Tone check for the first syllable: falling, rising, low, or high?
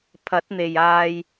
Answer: rising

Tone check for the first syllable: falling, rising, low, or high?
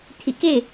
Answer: low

